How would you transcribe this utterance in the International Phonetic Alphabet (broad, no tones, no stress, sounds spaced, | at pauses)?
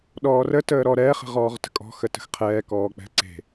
ɗ ɔː r ə t əː ɾ ɔ ɾ ɛː χ ə̤ ʁ ɔː ʁ t ə̤ kʼ ɔ̤ x ə t ə̤ x qʰ ɛː k ɔː k͡p ɛ̤ ǀ e̤